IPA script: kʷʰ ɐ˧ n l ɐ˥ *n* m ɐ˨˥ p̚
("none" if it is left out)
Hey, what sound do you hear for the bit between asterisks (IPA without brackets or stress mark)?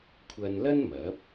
n